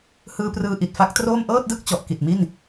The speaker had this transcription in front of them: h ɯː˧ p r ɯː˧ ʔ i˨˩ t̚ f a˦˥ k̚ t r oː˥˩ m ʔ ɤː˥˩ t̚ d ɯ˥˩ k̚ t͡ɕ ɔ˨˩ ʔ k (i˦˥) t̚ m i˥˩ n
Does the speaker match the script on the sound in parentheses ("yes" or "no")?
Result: no